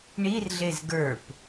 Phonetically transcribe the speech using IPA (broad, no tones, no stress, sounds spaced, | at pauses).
ɳ i r ɮ e z ɡ ə˞ p